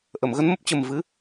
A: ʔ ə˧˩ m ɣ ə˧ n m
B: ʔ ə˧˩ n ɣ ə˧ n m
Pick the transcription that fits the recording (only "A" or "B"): A